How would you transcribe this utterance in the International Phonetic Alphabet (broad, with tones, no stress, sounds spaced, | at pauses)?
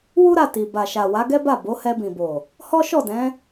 w u˦ ɾ a˦˨ t i˨ b a˨ ʃ a˨ w a˨˦ ɡ ɛ˦ b a˦˨ b o˨˦ h ɛ˧ b ĩ˨ b o˨ | h ɔ˦ ʃ ɔ˦˨ d ɛ̃˨˦